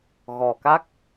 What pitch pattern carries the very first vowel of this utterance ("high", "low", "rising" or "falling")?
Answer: low